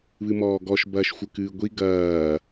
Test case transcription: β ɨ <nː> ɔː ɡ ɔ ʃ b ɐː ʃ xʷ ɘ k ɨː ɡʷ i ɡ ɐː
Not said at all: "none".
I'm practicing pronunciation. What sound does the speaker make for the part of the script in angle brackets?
m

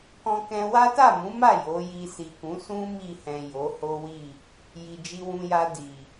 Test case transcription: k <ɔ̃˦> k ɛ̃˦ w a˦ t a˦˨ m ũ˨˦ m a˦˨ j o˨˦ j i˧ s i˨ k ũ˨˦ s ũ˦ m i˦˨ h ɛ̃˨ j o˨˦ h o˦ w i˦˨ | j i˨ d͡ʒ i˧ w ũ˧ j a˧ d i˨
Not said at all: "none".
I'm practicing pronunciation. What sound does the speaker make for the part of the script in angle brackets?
ɔ̃˦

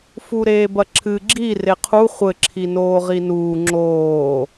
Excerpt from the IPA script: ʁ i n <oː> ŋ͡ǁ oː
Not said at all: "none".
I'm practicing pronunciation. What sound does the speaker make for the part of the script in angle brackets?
uː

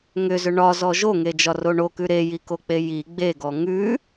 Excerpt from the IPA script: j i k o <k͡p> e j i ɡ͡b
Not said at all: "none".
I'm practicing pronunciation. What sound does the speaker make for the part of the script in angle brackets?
k͡p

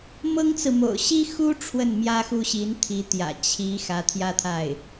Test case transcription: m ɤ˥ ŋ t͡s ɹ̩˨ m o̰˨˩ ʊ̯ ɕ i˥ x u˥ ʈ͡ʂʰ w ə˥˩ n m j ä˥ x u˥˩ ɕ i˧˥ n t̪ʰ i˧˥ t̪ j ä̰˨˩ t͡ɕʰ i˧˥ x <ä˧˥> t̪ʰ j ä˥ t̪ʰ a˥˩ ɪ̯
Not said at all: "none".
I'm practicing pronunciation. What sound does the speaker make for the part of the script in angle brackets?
ä˧˥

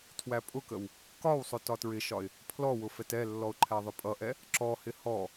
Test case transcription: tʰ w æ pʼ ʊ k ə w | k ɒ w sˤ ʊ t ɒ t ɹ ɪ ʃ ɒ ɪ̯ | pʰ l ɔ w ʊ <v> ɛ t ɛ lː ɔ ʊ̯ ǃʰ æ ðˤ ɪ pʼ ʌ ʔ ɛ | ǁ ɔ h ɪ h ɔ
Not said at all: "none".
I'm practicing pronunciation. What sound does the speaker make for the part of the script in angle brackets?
f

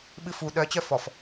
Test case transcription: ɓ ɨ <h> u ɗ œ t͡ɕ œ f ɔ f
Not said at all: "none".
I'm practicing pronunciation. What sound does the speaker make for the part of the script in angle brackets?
f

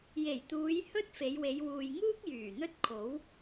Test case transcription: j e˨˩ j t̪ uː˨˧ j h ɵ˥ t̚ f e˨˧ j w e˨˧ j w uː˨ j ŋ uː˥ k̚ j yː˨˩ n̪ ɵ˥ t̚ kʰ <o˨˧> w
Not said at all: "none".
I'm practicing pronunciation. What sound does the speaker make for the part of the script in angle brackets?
o˨˥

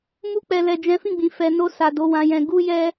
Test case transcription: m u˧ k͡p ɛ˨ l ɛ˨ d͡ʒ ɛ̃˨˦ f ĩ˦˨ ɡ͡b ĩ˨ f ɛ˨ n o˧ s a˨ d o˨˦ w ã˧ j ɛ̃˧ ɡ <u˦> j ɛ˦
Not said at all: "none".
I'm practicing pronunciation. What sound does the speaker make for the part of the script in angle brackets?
u˦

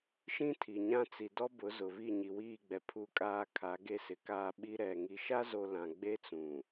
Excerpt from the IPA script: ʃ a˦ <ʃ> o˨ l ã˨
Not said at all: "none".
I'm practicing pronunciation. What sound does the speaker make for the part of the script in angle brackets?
z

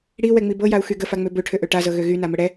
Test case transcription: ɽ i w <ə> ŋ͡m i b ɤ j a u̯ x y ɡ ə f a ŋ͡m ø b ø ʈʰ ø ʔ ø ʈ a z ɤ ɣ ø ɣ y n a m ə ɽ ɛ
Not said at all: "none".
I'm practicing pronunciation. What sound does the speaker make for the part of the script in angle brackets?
ɛ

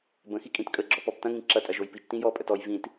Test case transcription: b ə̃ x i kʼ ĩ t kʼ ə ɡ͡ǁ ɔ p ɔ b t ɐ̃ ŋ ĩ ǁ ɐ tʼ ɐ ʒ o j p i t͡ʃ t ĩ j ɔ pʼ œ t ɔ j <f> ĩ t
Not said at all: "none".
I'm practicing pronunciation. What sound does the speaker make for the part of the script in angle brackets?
v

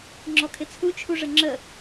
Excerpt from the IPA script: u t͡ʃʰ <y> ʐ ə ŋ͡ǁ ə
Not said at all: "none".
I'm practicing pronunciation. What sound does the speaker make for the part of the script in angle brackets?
u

